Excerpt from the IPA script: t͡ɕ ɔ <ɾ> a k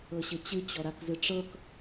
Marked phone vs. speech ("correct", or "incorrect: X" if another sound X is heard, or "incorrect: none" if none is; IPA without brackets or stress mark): correct